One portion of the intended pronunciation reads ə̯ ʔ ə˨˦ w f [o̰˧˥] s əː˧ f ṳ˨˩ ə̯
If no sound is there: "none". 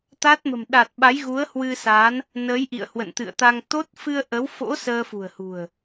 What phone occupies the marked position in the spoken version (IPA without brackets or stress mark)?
o̰˧˥